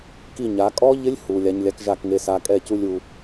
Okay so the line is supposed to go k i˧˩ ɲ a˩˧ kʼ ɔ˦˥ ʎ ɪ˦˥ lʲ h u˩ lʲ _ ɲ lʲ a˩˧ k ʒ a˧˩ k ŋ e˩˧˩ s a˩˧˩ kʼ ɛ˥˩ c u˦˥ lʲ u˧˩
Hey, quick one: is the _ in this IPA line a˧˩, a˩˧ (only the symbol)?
a˩˧